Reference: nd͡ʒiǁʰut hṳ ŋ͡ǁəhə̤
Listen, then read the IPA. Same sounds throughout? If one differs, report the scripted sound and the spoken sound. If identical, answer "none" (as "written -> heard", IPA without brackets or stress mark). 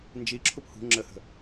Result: t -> p